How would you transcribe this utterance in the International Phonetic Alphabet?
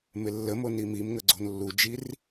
m ɪ lː ə m o n i m i m ŋ ə ɡ͡ǀ o̤ n lː u d͡ʒ i r

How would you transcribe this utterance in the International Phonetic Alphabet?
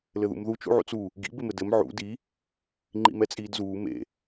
l ɘ ð ṵ m ð u t͡ʃ ṵ ʕ ṵ t͡s u | ɡ ḭ b ɪ m ɘ d ɘ m ʕ ṵ d i | ŋ͡ǃ ḭ m ɛ t͡sʼ iː d z uː m ḛ

